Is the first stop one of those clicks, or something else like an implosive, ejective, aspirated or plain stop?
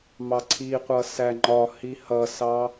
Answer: click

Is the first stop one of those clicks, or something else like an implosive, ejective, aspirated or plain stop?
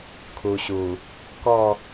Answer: aspirated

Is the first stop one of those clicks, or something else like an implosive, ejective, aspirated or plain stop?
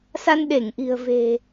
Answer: implosive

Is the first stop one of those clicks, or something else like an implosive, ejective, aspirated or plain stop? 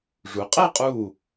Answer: ejective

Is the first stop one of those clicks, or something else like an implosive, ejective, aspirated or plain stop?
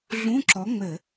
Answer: click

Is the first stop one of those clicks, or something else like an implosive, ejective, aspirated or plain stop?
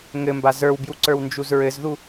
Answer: plain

